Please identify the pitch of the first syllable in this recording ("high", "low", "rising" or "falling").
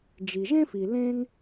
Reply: low